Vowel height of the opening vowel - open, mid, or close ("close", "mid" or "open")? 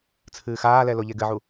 close